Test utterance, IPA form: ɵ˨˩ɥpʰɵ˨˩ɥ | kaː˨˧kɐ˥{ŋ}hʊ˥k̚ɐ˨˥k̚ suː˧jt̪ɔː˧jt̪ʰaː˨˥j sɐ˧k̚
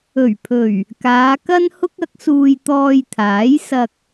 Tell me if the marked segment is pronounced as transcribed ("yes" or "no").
no